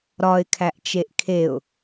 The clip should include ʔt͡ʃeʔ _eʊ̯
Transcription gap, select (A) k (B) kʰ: B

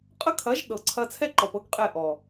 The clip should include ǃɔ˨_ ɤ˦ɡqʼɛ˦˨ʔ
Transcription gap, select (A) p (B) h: A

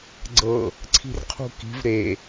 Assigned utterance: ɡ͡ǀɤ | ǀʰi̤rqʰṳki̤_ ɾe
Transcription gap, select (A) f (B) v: B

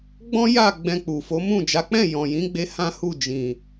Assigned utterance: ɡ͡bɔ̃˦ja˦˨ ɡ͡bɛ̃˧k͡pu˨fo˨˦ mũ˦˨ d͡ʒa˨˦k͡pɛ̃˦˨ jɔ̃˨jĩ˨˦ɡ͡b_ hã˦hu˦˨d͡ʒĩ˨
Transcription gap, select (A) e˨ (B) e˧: B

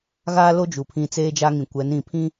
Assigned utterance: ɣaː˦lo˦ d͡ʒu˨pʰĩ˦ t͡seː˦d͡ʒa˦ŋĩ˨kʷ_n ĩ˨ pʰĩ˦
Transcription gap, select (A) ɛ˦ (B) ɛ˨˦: B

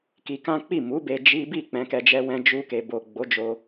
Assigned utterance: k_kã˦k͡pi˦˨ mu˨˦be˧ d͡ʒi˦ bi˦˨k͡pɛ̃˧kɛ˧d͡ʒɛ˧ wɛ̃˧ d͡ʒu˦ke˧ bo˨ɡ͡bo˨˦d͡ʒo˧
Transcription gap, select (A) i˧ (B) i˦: A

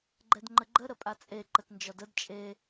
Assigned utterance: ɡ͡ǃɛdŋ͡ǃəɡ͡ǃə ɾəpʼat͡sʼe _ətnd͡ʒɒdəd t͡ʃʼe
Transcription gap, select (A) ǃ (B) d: A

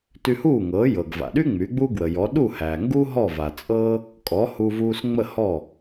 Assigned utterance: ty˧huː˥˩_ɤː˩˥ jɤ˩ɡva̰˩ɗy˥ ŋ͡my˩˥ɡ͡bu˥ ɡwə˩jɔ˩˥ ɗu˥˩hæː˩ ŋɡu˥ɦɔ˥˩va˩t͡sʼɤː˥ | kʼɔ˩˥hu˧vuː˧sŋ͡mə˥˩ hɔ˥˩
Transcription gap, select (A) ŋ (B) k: A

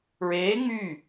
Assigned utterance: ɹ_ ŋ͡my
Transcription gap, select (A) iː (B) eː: B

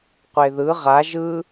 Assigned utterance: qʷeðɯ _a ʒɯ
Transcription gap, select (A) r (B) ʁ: B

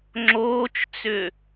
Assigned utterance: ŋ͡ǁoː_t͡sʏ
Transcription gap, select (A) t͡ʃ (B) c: A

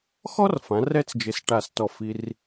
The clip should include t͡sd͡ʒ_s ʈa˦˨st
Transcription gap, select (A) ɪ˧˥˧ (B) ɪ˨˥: B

